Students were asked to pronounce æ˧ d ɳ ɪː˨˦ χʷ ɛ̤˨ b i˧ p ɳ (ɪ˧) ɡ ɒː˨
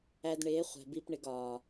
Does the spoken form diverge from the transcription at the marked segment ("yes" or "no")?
no